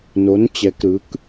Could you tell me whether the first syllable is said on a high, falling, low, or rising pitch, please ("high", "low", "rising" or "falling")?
rising